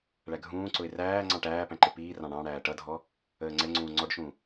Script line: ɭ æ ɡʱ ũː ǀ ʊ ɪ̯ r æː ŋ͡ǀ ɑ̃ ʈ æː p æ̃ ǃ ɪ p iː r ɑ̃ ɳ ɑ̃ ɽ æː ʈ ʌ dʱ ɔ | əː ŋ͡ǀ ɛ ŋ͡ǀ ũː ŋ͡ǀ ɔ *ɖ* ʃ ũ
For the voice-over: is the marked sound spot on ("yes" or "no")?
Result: yes